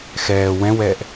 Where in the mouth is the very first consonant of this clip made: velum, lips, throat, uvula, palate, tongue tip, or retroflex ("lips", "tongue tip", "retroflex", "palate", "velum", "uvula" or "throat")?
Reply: velum